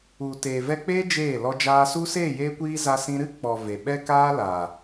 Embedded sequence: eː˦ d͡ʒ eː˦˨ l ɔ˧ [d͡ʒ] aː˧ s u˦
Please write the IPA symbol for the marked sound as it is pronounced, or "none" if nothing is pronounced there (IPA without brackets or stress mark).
d͡ʒ